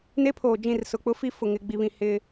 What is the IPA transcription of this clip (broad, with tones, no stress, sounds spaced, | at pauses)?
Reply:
n e˦ pʰ oː˨ d͡ʒ ĩ˦˨ r s ʊ˨ k͡p ʊ˦ f i˦ f ʊ˨ ŋ ɪ˨ ɡ͡b i˨ β ĩ˨ h ɪ˦